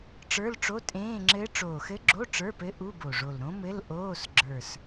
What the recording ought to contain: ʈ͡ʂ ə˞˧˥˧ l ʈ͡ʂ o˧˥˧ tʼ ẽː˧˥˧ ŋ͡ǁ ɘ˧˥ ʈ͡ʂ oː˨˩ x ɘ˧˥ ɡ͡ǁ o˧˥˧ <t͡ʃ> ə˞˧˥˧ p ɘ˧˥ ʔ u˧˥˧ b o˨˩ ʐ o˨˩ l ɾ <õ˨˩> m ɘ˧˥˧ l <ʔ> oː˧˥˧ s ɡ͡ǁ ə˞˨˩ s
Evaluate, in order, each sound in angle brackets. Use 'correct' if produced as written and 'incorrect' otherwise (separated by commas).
incorrect, incorrect, correct